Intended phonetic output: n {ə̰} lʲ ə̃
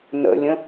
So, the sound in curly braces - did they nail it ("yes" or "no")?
yes